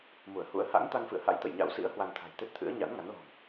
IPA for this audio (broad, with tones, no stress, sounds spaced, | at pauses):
m u˧˩ ə̯ h ṵ˧˥ ə̯ h a̰˧˥ ŋ t̪ a˧ ŋ f ɨ̰˧˨ ə̯ h a̰˧˥ j t̪ ə̰˧˨ j ɲ a̰˧˥ w s ḭ˧˥ ə̯ h w a˧ n t̪ʰ a̤˨˩ j t̪ e˦˥ t̚ t̪ʰ ɨ̰˧˥ ə̯ ɲ a̰˧˥ n ŋ a˨˦ n l ɔ̤˨˩ ŋ